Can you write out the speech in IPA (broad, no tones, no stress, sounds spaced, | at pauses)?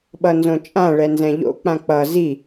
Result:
ɓ ʌ n z õ t͡ʃʼ ã ɭ ɛ n z ɛ̃ ʎ o̰ k͡p ã k͡p ʌ z i